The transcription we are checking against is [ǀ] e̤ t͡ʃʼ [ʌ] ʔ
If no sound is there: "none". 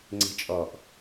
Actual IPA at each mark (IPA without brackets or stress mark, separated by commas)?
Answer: ŋ͡ǀ, ɔ